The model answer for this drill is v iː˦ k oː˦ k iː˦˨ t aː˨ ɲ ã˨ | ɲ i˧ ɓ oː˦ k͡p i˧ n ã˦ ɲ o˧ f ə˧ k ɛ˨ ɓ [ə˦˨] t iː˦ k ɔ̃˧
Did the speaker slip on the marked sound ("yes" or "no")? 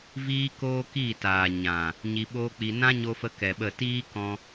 no